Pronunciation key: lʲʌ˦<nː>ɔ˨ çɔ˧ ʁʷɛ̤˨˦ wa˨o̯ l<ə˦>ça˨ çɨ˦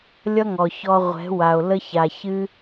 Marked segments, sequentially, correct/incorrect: incorrect: ŋ, correct

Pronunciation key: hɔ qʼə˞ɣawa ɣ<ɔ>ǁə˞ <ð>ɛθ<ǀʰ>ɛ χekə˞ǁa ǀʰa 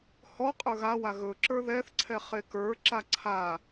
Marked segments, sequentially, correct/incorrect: incorrect: ɵ, correct, correct

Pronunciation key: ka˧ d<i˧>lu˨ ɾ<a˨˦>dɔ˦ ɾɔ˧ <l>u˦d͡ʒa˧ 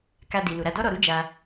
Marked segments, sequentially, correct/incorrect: incorrect: i˨, incorrect: a˧, incorrect: ɾ

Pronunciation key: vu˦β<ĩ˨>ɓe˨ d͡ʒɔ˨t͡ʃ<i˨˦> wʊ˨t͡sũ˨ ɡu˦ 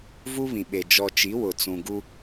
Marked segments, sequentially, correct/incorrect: correct, correct

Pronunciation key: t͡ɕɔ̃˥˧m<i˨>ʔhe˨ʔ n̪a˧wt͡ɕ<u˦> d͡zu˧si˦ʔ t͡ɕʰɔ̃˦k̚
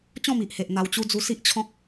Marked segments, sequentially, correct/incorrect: correct, correct

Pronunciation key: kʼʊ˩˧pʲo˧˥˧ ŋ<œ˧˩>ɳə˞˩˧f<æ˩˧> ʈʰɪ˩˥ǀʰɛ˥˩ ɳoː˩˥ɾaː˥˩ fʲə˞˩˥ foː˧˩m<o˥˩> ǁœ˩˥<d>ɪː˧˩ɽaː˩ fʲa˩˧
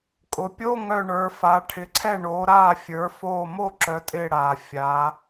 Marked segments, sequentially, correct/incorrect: correct, incorrect: a˩˧, correct, incorrect: tʼ

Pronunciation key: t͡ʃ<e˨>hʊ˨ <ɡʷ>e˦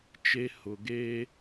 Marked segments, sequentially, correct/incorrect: incorrect: e˦, incorrect: ɡ

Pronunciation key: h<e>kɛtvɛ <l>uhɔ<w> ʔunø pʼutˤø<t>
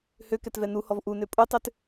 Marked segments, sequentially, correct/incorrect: incorrect: ø, incorrect: n, incorrect: v, correct

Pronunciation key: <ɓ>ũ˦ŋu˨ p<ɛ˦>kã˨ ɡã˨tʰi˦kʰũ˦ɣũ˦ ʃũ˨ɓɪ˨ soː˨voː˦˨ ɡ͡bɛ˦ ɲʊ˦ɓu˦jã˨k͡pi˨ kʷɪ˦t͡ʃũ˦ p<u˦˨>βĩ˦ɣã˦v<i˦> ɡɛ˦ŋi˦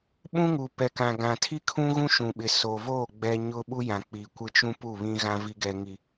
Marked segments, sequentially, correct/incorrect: correct, incorrect: ɛ˨, correct, correct

